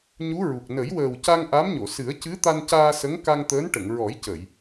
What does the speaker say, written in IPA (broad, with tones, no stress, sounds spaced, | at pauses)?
ɲ u˧˥ ɹ u˨˩ k̚ n ə˨˩˦ j w əː˨˩ w c a˧ ŋ ʔ a˧˥ m ɲ o˨˩˨ s ɨ˨˩˦ ə̯ c ɨ˧˥ t̪ a˧ n c aː˧ s ə˧˥ ŋ k a˧ ŋ t̪ əː˧˥ n ʈ ə˨˩˨ ŋ ɹ ɔ˨˩˦ j c ə˨˩˨ j